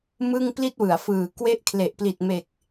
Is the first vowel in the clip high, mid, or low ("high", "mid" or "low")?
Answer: high